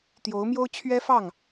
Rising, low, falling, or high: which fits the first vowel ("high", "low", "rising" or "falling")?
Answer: rising